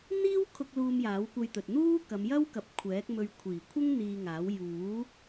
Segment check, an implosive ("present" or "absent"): absent